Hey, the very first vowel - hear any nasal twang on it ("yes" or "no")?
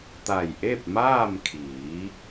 no